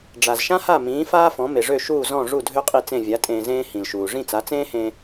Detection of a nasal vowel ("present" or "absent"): present